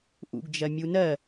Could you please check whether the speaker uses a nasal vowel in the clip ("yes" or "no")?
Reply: no